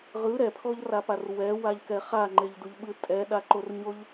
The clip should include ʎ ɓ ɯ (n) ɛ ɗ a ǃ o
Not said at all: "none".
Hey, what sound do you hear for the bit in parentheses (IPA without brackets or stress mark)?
tʼ